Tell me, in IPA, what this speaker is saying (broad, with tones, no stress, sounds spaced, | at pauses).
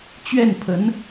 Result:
t͡ɕ ɥ ɛ˥˩ n pʰ ə˧˥ n